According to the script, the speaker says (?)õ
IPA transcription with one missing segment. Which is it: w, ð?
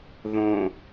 ð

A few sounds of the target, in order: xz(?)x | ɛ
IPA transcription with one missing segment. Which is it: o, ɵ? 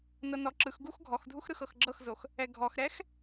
o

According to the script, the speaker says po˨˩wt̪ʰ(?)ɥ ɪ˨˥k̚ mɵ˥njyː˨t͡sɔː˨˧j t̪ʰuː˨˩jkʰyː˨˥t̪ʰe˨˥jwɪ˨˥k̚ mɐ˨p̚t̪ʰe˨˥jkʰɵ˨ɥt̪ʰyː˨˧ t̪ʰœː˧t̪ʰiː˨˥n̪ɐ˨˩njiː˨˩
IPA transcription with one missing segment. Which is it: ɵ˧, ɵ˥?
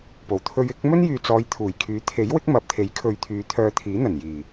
ɵ˧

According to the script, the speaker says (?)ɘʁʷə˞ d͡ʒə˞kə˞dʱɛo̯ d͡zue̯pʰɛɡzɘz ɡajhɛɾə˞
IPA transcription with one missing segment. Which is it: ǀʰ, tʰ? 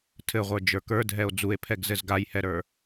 tʰ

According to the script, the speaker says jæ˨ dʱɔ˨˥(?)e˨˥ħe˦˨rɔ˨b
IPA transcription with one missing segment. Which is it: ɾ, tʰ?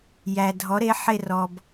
ɾ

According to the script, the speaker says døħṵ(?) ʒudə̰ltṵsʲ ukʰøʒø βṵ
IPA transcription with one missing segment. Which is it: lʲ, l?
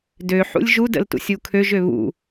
lʲ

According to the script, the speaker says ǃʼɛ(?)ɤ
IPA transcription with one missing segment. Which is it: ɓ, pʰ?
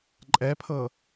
pʰ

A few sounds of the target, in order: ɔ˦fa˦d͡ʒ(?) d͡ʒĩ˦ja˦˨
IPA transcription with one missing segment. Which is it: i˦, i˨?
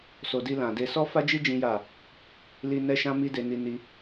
i˦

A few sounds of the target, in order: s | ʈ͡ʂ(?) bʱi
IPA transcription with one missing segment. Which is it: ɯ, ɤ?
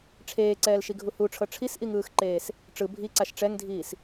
ɯ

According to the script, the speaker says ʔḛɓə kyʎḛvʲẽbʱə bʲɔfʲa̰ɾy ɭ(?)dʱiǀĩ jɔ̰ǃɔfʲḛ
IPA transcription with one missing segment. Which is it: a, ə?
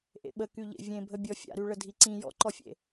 ə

